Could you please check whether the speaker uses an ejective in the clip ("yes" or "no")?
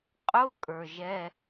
yes